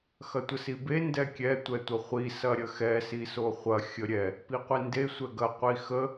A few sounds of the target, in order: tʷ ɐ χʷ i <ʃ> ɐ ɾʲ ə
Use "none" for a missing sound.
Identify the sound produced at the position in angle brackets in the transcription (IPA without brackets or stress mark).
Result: s